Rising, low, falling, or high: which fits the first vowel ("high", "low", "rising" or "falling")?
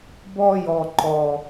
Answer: high